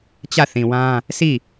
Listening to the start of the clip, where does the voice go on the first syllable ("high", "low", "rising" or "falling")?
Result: falling